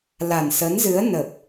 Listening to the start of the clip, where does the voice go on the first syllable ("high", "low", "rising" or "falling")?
low